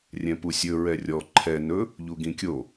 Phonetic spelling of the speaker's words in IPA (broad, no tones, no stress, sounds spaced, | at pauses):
rʲ ɛ̃ p u sʲ ɵ ɹ ɛ rʲ ɔ ǃʰ ɛ n ɵ | ʎ u ɡ ĩ kʲ o